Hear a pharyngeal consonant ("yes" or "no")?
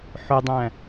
yes